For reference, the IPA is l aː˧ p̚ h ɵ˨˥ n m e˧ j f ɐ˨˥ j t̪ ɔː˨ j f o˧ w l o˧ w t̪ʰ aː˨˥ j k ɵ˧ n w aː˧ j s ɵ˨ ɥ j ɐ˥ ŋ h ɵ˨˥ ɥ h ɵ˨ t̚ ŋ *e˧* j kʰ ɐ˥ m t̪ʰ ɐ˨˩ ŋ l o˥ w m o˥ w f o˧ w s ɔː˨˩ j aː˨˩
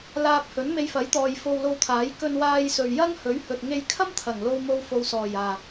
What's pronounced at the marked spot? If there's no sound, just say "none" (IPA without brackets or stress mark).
e˧